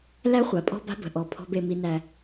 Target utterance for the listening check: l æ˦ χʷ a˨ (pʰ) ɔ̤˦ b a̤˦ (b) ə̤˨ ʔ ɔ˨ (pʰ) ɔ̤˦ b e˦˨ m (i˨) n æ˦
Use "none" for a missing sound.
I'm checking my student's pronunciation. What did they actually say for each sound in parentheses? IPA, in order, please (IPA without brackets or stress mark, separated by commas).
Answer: pʼ, b, pʰ, i˦